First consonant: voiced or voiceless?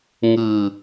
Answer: voiced